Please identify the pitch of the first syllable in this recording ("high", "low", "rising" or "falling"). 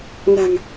low